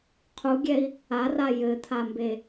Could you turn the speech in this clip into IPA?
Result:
qʰ u ɡʲ ɛ i̯ | a r a j ɘ t̪ʰ a m b e

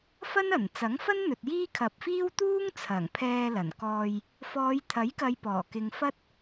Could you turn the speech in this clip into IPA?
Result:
f ɐ˥ n ɐ˨˩ n t͡s ɐ˨˥ ŋ f ɐ˥ n n̪ ɵ˨ t̚ j iː˥ kʰ ɐ˨ p̚ f iː˥ w t̪ uː˥ ŋ t͡sʰ ɐ˨˩ ŋ pʰ ɛː˧ l ɐ˨˩ n k ɔː˧ j | f ɔː˨˧ j t̪ʰ ɐ˨˥ j k ɐ˨˧ j p ɔː˨˩ k ɪ˧ ŋ f ɐ˥ t̚

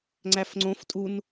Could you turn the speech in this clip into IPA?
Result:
ŋ͡ǀ æ f ŋ͡ǀ õ f tʼ u n

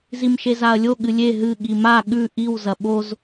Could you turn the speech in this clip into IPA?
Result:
z i m ʃ e z a ɐ̯ lʲ o ɠ ɨ lʲ e ɦ ɨ ɠ i m a ɠ ʉ ʔ i w z ɐ ɓ o z

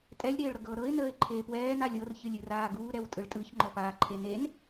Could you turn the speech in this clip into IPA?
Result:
tʼ ɛ lʲ ɾ eː ɭ ɾ ɤ ɡ ɤː ɾ ɤ ɪ̯ n əː ɪ̯ ǃʰ eː p w ɛː n a lʲ ɤ r ç ɨ lʲ ɨ r aː ɡ uː ɾ ɛ w tʼ ɯ ɭ tʼ ɯ ç ŋ͡ǃ ɔ p aː ǃʰ e n e n

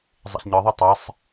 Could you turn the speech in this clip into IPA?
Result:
zˤ ɛ̰ ɬ ɲ ɯ ðˤ ʌ tˤ e sˤ

